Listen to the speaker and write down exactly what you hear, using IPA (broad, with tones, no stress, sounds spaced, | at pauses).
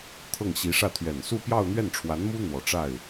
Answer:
t̪ʰ ɤ˥˩ ŋ ɕ i˧˥ ʂ ä˥˩ t̪ʰ ɥ ɛ˨˩ n s u˥˧ p j ɑ˥˧ ʊ̯ n̪ ɥ ɛ˥˩ n ʈ͡ʂʰ w a˧˥ n m u˥ n̪ w ɔ˨˩ ʈ͡ʂ a˥˩ ɪ̯